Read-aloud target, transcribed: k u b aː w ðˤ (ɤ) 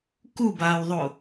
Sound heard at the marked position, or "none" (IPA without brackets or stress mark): o